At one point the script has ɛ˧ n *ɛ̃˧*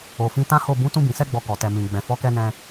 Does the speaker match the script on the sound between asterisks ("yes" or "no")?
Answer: yes